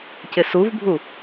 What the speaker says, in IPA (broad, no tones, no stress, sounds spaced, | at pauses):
c ɪ s u v bʱ u